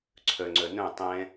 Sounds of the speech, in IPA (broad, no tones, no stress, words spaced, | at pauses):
ǀʰœŋ͡ǀœ nœ̃ tˤɛ̃